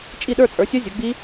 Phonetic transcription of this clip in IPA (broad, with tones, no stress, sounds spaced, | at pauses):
t͡ʃʼ i˥˨ ɗ ə˞˥˨ t͡sʼ ə˞˩˥ sʲ ə˦˥ zʲ ə˩˥ ɡ͡b i˦˥